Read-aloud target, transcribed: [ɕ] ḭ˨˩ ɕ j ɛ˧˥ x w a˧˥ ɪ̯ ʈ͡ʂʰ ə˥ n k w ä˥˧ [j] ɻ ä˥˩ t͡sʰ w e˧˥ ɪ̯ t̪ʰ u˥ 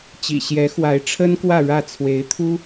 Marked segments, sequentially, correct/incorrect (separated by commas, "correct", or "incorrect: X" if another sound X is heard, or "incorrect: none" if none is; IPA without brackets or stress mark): incorrect: t͡ɕ, incorrect: none